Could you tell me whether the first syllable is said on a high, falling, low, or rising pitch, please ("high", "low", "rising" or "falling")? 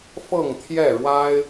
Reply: falling